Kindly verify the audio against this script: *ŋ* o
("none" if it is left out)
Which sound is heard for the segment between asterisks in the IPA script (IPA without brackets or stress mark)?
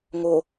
ŋ